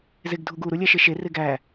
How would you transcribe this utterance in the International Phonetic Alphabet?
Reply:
zeɡdʱuɡu ɾulʲæʃeʃe reɡæ

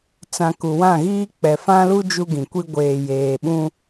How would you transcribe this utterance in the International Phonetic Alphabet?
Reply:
t͡sã˨ ku˨wã˦˨ɣiː˦ k͡pɛ˨fã˦lu˦ d͡ʒu˦ɡĩ˨kʷi˦ ɡʷeː˨jeː˨ɓũ˦

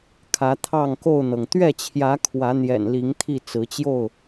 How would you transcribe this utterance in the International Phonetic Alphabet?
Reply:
kʰä˨˦t̪ʰɑ˥˨ŋko˥˨ʊ̯n̪ɤ˩ŋ t̪ɥɛ˥˨t͡ɕʰjä˨˦ kʰwä˨˦n̪jɛ̰˨˩nli˨˦ŋt̪ʰi˥˨ t͡sɹ̩˨˦t͡ɕjo˥˨ʊ̯

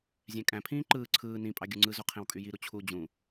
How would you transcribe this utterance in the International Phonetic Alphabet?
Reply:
zʲæ̃kʼæ̃pʰĩː ǃɯː ǀʰɯː nĩpʼɑ ɡʲuŋ͡ǀɯzo qʰẽwkʼyjiɾu t͡ɕʰu d͡ʑũ

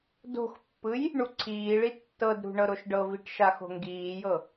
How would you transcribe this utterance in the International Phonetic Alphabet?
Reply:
do̤xpːɯj | ɳuǀʰiːɭi tːɤdɾṳ ɳɤɾoʃɖɤviʈ ʃaxo̤ŋɡiːjɤ

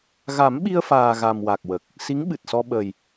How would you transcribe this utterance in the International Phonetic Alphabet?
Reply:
ɣa˨˩˦mɓi˧ə̯faː˨˩ ɣa˨˩mwa˨˩k̚wə˨˩k̚ | si˧˥ŋɓɨ˨˩t̚sɔ˧ ɓə˨˩j

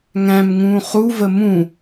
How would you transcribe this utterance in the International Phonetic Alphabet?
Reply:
ŋæ̃mŋũː χuvə mũ

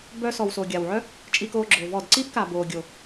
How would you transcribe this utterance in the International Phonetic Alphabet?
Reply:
bœ˧sɔ˨w so˨ɡʲa˨wʕœ˦ | t͡ʃʼi˧koː˧ɡ͡ǁoː˨ vɔ˦˨d ǀiː˦pka˨ boː˨ɡʲo˨

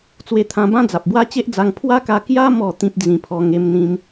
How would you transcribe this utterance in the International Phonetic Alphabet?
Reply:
t͡swe˧t̪ʰã˧bã˦ d͡za˨p̚bwa˦t͡ɕe˦ʔd͡za˧ŋ pʰwa˦ka˧ kja˦ mɔ˥˧t̪ĩ˦p̚ d͡zĩ˧pʰɔ˧ ŋe˦mn̪ĩ˦m

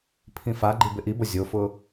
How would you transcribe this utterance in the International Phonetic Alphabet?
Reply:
pʰĩfaɡ͡ǃi bɪʔibo zʲofʊ

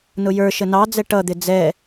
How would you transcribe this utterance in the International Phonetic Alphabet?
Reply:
nʊjə˞ʃə nɑd͡zɛ ʈʌd̪ɪ d͡zɛ

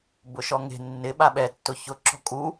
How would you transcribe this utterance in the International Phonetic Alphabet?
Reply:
bʊʃɔŋe̤ nːɪ ɓaɓɛ tːʊçʊ ǁɔ̤kʼu

